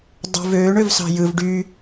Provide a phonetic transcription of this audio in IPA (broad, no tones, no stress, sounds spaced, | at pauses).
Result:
dˤ ṳ v øː ɳ ø v s ɑ̤ j ɯ v ɖ y